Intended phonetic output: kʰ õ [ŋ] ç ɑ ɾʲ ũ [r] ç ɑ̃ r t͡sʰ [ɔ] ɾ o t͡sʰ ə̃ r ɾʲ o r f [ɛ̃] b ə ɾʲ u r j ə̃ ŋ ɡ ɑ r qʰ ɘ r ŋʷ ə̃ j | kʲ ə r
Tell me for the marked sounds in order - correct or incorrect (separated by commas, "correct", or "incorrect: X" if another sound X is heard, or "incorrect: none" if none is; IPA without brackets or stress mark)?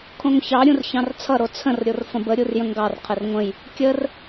correct, correct, incorrect: ʌ, incorrect: ə̃